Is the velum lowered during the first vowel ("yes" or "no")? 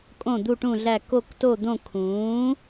yes